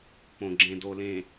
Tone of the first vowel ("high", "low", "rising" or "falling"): low